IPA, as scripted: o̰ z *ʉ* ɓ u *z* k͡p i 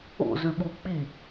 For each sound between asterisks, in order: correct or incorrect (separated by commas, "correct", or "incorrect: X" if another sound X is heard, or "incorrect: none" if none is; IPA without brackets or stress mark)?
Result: correct, incorrect: none